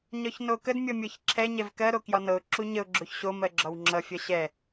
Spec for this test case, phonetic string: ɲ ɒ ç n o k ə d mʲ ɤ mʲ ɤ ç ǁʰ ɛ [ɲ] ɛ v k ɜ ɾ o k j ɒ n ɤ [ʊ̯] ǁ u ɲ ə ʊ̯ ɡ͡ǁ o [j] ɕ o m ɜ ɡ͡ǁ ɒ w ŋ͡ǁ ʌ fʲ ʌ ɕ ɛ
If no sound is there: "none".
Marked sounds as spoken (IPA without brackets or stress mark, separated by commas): ɲ, ʊ̯, ç